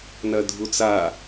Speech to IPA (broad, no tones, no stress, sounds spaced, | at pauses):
n ɐ dʱ u t͡s a